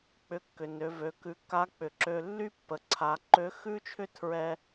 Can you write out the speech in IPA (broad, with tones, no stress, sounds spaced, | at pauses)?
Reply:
k͡p ʏ˧ kː ʏ˩ n ø˩˧ v ø˩˧ k ʉ˩ kː a˧˥ k͡p ʏ˩ ǁ ø˧ lː y˥ pː ə˩ ǀʰ a˩˧ ǃ ø˧˥ x ʉ˥ t͡ʃʰ ʏ˥ tʰ ɹ ɛ˥